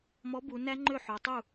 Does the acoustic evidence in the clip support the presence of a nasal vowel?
no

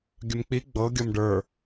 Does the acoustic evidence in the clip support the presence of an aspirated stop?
no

